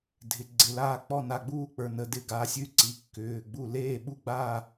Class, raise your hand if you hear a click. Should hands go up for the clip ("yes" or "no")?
yes